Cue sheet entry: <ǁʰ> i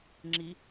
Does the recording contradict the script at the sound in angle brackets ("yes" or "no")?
yes